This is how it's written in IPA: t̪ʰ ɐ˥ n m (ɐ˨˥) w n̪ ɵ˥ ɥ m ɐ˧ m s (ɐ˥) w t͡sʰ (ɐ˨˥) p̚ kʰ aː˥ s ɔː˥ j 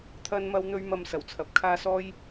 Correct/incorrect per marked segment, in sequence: incorrect: ɐ˥, incorrect: ɐ˨˩, correct

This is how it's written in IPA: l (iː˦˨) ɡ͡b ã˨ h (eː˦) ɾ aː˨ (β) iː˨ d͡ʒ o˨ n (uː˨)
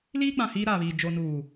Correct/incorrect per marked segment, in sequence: incorrect: iː˦, incorrect: iː˦, correct, correct

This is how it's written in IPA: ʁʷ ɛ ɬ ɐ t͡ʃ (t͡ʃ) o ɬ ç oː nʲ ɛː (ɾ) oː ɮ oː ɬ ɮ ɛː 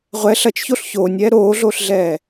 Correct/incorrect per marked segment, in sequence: incorrect: ç, correct

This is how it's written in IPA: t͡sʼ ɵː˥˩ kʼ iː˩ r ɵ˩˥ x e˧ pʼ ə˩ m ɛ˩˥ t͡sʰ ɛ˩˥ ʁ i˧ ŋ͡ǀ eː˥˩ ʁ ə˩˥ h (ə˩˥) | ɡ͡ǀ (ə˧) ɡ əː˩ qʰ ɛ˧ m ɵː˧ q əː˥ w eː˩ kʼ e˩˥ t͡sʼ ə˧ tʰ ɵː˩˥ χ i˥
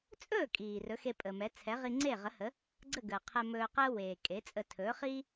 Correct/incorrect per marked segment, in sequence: correct, incorrect: ə˥˩

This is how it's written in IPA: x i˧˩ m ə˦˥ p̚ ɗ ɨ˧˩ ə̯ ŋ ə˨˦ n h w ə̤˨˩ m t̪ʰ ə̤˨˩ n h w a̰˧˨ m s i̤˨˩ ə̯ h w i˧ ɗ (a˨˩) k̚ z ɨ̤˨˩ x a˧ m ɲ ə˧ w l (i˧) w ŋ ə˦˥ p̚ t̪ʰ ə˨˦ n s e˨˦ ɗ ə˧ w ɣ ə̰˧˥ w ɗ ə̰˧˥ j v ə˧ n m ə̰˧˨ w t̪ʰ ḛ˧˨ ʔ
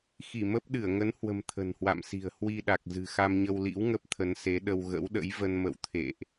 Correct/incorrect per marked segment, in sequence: correct, incorrect: ḭ˧˥

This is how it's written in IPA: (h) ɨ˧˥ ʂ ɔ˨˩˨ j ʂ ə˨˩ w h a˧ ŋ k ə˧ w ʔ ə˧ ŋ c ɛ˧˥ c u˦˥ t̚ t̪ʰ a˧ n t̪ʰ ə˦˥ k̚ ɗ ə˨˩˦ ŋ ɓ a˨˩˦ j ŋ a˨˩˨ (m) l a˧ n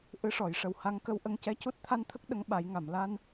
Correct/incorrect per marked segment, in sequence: incorrect: ʔ, correct

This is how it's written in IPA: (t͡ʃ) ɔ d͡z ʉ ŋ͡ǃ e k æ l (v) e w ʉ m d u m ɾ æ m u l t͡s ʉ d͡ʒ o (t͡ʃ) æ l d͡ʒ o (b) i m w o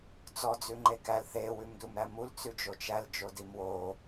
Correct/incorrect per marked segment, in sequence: incorrect: t͡s, incorrect: θ, correct, incorrect: d

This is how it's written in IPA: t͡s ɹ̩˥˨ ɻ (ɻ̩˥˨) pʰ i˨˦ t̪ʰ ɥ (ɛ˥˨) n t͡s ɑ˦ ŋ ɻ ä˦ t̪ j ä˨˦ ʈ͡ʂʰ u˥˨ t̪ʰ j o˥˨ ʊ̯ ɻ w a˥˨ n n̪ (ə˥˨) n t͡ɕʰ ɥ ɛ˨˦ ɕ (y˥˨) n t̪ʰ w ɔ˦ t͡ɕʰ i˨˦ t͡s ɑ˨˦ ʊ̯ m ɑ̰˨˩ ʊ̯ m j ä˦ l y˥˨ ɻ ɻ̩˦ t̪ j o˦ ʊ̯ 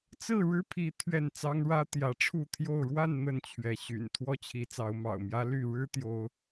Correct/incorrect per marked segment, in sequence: incorrect: ɻ̩˦, correct, correct, incorrect: y̰˨˩

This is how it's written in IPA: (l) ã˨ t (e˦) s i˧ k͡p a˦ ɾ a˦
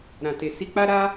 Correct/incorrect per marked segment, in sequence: incorrect: ɾ, incorrect: e˨

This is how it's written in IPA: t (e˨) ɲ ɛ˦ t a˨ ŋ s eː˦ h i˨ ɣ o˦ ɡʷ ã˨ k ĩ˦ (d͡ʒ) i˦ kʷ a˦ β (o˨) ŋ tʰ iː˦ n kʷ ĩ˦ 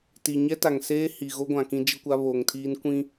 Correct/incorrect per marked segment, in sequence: incorrect: i˨, correct, correct

